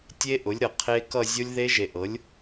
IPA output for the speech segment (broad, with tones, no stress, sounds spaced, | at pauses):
tʲ e˦˥ ʔ ʊ˩˥ lʲ ɾ ɤ˨ qʰ e˦˥ k ʌ˥˧ zʲ o˦˥ lʲ ð e˦˥ ʒ e˨ ʔ ɤ˩˥ lʲ